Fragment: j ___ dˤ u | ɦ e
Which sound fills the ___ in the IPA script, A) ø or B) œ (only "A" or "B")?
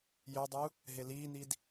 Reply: A